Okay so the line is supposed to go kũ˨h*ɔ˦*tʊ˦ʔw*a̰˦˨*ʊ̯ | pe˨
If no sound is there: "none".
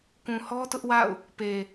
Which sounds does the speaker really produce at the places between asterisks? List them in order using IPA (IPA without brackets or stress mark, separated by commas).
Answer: ɔ˦, a̰˦˨